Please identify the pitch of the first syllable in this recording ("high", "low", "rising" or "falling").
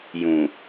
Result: low